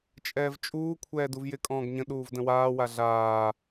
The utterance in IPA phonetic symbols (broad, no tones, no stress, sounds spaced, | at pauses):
t͡ʃʼ ɛː v t͡ʃʼ uː kʷʰ ɛː d u v j ɪ kʼ ɔ̃ː ɡ ɲ ə̃ ɗ uː v d ə̃ w aː w a ɮ aː